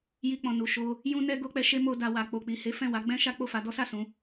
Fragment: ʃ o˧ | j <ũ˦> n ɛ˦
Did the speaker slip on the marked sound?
no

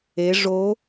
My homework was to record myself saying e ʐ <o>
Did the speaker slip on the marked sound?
no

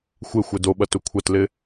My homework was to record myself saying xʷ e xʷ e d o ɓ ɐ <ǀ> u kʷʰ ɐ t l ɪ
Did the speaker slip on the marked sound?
yes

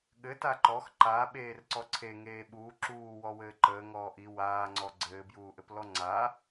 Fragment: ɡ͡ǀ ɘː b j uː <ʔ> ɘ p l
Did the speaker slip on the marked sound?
no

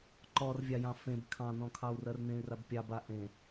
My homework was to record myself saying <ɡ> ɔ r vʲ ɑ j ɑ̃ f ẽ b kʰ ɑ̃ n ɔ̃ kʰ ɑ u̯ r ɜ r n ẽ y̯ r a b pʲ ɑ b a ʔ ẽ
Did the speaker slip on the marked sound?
yes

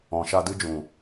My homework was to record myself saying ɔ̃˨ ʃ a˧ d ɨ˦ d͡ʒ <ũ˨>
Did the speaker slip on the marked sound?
no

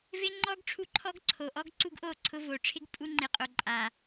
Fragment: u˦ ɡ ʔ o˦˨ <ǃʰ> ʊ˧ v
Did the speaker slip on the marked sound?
yes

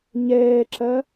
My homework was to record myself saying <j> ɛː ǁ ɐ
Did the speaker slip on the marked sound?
yes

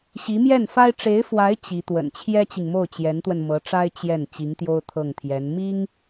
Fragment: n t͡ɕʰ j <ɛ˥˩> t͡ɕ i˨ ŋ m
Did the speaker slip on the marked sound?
yes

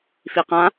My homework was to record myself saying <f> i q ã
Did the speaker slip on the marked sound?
no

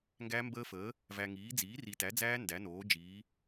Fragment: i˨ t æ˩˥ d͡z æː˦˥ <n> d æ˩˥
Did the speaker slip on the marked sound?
no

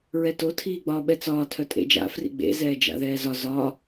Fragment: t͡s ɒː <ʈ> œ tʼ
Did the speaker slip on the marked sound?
yes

